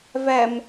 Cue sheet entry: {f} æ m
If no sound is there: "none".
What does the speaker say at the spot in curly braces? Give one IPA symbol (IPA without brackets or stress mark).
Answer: v